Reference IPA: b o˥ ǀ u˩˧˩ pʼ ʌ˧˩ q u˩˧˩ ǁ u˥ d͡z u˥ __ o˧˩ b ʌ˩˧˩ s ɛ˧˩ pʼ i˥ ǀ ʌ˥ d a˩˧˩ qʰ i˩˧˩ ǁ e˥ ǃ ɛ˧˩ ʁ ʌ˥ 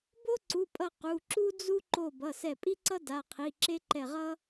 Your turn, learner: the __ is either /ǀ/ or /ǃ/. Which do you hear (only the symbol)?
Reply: ǃ